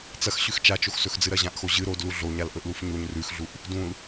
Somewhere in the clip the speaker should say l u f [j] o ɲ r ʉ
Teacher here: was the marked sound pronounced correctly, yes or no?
no